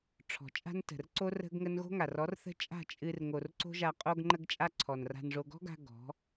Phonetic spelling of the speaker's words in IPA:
ʈ͡ʂʰɔ̤˨t͡ʃʼa̤˦n tə̤˨rǀo˦r ə̤˦ɡŋə˦n ɣo̤˦ŋa˨rɔ˨˦rθə̤˦ t͡ʃʼa̤˦˨t͡ʃʼɨ˧r ŋo˧r ǀo̤˦ʒa˧ qʼo˧ɡŋ͡ǃə˧ɡ t͡ʃʼa˦ǀʰɔ˨nra̤˧nʐo˧ ɡɔ̤˦ɡa̤˧ ɡɔ̤˨˦

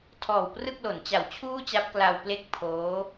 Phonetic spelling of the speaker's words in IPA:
tʰɔː˨˩wprɯ˥˩k̚ lo˩˦nt͡ɕa˨˩wt͡ɕʰuː˥˩t͡ɕa˦˥p̚ kla˧w ple˥˩k̚pʰoː˦˥

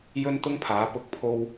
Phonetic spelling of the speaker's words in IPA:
jɵ˥nt̪ʊ˥ŋpʰaː˨˥ pʊ˨˥k̚pʰo˧w

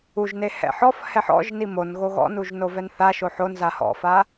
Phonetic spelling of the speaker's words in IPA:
uʒne hɛ̰ħɔf hɛħɔ̰ʒni mon ɣoɣɔ̰nuʒno vɛnθaʃo ħonza hɔ̰fa

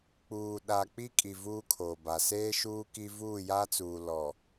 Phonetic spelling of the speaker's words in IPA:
k͡puː˨ɗa˨ k͡pi˦kʼi˨ vuː˦kʰoː˨ba˨ seː˦ʃuː˦ ki˦ vuː˦˨ja˦t͡suː˨ lɔ˨

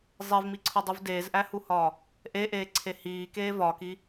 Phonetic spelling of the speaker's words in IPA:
zˤevmiǀʰodˤuv deːzʔæhuhɒː | ʔeʔeːǀʰe hiːkeː vɒːki

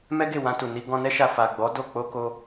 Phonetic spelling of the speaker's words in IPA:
mɛ˦ɡe˦˨wã˧tu˨ ni˧ ɡɔ̃˧nɛ˦ʃa˧ fa˨ɡ͡bɔ˨˦ do˦˨ k͡po˧ ko˦

